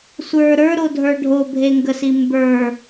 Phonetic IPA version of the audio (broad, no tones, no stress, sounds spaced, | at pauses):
sʷ ə˞ ɾ ə˞ ɾ o dʱ ə˞ ɖʱ o bʱ e ŋ ɡ ə s i m b ə˞